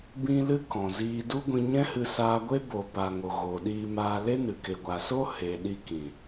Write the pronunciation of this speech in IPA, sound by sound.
b ĩ˧ l ɨ˦ k ɔ̃˨ z iː˧ d u˦ ɡʷ ĩ˧ ɲ ɛ̃˦ h ɨ˧ s aː˧ ɡʷ e˦ b o˨ p a˨ ŋ o˨ ɣ oː˨ ɗ iː˧ m aː˧ l e˦ n ɨ˨ k e˨ ɡʷ a˨ s o˦ h e˨ ɗ i˧ k ĩ˨

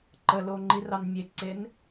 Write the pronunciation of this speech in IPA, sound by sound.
ǃ ə l o ŋ͡ǃ i r ɑ n mʲ e ǀ e n

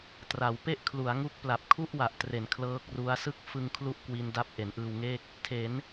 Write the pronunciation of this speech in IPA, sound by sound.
t r a˩˦ w p e˥˩ ʔ kʰ l u˩˦ a̯ ŋ u˦˥ k̚ p l a˨˩ p̚ kʰ u˥˩ ʔ w a˨˩ ʔ t r e˩˦ n kʰ l ɤː˦˥ k̚ r u˦˥ a̯ s ɯ˥˩ k̚ f ɯ˧ ŋ kʰ l u˥˩ ʔ k w i˧ n d a˦˥ p̚ ʔ e˩˦ n ʔ ɯː˧ w ŋ eː˥˩ k̚ | tʰ e˩˦ n

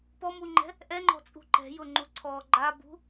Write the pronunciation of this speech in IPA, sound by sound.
p ɔ m u ŋ͡ǃ ɛ̤ | ʔ ɛ ŋ͡ǃ ɔ̤ t͡sʼ ṳ ǃ ɛ̤ j ʊ ŋ͡ǃ u ǀʰ ɔ ɡ͡ǃ a b ṳ

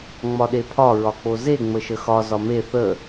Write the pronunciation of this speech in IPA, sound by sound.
ŋ͡m ɒ ɗ e pʰ ɒ ɹ ɒ k͡p o z e ŋ͡m ə ʃ ə x ɒ z ɒ m e θ ə

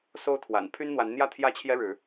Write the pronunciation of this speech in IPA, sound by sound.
s o˦ ʊ̯ t̪ʰ w a̰˨˩ n pʰ y˦ n n̪ w a˨˦ n n̪ j ä˥˨ t̪ʰ j ä˦ t͡ɕʰ j ɛ˦ ɻ ɻ̩˨˦

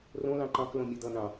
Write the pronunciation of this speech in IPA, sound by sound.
r õ l ɑ̃ ǃ ɑ̃ k l õ mʲ ʌ d̪ ʌ n̪ ɑ̃

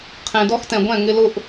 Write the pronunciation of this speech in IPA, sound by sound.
qʰ ẽ˨ d ɔ˧ x t ɛ̃˨ ɡʷ ɛ̃˦˨ ŋ ɪ˧ l ʊ˦ ʔ

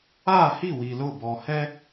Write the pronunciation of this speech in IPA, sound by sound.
aː˦˨ h i˦˨ w i˨ l ʊ˦˨ b ɔ˨ h ɛ˦

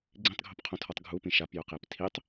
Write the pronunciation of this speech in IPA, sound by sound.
ɡ͡ǀ ĩ tˤ ɡʱ o p qʰ õ tʰ ɔ tˤ ɡʱ u p ĩ ʃ a p j ʊ q e p tʰ i tˤ

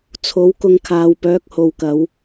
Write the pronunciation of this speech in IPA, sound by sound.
t͡sʰ o˨˥ w k ʊ˧ ŋ kʰ aː˨ w p œː˨˥ k̚ h o˨ w k ɐ˨˧ w

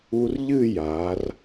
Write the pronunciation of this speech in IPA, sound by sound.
u˧ r ʎ ɨ˥˧ j a˩˧ r

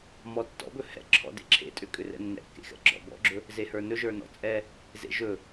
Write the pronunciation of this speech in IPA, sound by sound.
m ɔ tː ɔ̰ b ɵ h ɛ̰ ǁʰ ɔ̰ d ḛ ǁʰ ḛ tʼ ʏ kʼ ʏ r ɛ̰ nː ɛ̰ kː ḛ x ɛ̰ ɡ͡ǁ ɔ̰ b ɔ̰ ɡ͡ǁ ɵ | z e h ə˞ n ɵ ʒ ə˞ n ɔ̰ t͡sʼ ɛ | z ḛ ʒ ɵ

